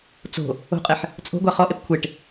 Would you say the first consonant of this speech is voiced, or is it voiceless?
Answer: voiceless